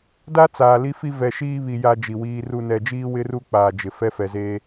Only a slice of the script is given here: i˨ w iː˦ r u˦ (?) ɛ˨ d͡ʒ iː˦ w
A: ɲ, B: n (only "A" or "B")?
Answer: B